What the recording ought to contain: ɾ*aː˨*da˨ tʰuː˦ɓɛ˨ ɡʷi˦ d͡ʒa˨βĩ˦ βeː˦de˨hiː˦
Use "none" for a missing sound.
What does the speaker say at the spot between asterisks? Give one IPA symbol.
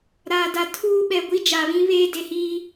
aː˨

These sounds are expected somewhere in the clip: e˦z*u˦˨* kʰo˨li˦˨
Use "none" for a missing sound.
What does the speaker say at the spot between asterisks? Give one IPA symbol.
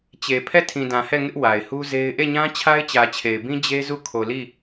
u˦˨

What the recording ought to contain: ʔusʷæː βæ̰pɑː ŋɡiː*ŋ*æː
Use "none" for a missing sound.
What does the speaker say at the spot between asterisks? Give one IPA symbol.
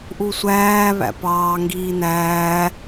n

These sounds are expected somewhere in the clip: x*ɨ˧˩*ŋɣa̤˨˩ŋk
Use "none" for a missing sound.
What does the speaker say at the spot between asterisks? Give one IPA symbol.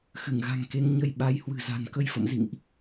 ɨ˧˩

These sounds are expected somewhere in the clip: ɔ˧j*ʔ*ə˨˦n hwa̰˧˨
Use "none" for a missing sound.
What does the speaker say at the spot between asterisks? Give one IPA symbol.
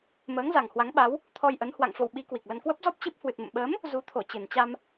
ʔ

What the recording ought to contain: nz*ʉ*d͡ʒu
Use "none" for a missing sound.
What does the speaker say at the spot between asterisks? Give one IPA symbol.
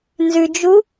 ʉ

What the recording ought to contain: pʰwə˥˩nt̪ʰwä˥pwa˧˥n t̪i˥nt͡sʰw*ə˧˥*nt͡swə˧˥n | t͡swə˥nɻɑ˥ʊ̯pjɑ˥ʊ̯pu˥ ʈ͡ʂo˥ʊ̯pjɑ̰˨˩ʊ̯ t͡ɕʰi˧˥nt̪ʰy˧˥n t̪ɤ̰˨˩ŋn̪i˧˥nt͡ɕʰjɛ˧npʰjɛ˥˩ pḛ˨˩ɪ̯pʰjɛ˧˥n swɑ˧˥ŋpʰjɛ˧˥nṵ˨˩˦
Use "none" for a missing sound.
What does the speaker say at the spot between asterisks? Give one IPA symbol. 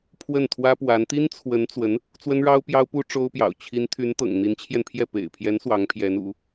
ə˧˥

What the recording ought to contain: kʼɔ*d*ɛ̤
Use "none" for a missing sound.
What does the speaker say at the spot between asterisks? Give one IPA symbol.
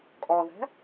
ð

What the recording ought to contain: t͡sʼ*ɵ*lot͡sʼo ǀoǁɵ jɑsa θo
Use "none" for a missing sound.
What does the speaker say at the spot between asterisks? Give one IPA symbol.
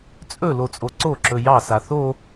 ɵ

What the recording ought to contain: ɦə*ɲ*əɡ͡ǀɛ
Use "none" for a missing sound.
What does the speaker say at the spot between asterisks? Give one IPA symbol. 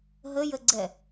j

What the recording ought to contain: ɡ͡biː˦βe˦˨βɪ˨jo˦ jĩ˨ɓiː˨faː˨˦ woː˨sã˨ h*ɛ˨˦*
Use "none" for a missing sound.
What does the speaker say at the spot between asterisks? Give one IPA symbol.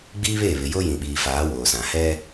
ɛ˦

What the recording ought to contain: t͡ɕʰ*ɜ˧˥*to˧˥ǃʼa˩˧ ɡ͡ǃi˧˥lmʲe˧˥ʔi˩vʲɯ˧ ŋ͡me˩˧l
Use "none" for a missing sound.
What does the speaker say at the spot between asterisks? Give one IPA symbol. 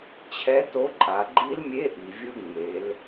ɛ˧˥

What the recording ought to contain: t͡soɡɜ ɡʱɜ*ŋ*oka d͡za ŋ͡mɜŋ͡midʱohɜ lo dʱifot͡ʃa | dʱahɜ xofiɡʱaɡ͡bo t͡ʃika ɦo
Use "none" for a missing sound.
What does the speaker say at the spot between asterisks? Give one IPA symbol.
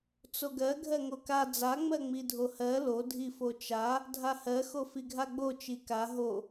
ŋ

